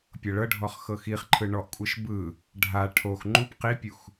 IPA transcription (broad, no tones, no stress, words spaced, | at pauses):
pʲɤɭɤɖʱɔχ xɤxiχǃʰɯ ɳɔʔkʷʼɯʃ bɯ | ɖʱa ʈʰox ŋ͡ǃup qipʲux